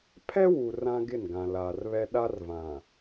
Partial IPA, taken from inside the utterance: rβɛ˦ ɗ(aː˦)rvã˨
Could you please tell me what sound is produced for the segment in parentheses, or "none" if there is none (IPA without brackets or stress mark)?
a˦